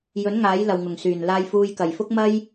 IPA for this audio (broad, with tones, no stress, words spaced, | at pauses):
jɵ˨˥n ŋaː˨˥jlɐ˨wŋʊ˨˩ŋ syː˨˩nlaː˧jfuː˧j kɐ˨˩jfʊ˥k̚mɐ˥j